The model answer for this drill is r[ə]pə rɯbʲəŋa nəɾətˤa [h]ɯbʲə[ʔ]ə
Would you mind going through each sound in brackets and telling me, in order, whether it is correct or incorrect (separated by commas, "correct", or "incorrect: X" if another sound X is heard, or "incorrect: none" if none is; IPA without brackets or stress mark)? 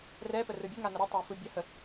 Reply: incorrect: ɛ, incorrect: f, incorrect: h